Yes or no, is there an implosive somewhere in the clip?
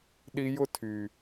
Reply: yes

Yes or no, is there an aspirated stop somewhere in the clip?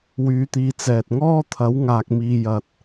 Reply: yes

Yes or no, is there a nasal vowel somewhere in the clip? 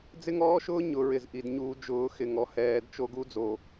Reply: no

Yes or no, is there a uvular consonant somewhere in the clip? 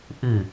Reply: no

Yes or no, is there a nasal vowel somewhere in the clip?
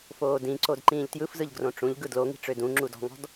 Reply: yes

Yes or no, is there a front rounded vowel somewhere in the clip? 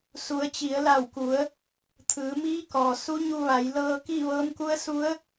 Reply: no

